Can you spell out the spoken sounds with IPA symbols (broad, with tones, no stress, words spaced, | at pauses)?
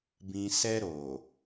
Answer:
bĩ˨sɛ˧ ɾo˨